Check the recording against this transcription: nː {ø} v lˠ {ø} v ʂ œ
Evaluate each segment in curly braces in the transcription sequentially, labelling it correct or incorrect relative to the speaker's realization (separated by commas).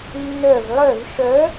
incorrect, incorrect